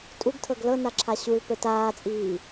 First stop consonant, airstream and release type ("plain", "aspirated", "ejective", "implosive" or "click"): ejective